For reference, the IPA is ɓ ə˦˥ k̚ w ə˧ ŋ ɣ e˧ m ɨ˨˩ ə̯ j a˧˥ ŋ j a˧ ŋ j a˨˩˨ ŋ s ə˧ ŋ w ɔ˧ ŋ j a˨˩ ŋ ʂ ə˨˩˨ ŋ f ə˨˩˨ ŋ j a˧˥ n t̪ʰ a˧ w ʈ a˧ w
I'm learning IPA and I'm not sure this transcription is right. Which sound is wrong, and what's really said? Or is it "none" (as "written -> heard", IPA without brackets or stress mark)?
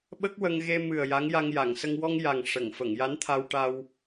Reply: none